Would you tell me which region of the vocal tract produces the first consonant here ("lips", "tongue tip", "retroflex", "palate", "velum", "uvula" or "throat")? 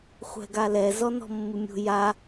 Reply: uvula